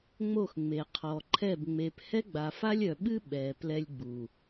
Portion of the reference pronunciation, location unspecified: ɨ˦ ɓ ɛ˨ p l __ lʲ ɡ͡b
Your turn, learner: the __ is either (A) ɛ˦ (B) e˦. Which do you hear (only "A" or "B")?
A